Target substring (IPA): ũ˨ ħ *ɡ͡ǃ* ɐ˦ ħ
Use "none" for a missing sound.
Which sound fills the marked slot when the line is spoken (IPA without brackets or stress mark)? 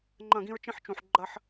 ɡ͡ǃ